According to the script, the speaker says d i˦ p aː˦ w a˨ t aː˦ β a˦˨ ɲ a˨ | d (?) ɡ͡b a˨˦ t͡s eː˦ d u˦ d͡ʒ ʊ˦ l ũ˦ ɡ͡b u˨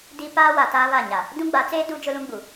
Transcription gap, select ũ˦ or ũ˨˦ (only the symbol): ũ˦